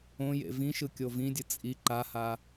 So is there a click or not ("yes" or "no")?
yes